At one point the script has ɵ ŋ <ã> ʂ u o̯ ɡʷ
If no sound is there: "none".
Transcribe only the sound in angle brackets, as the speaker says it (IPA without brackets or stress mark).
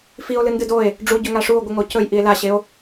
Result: a